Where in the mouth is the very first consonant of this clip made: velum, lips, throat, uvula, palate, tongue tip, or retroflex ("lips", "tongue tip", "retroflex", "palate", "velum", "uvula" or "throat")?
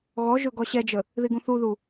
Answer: velum